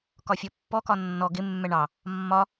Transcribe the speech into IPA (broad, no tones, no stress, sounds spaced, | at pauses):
k ɒ fʲ ɔ pː ɔ k ɒ nː ɔ ɡ ɪ mː ɛ ɳ ɑ | mː ɒ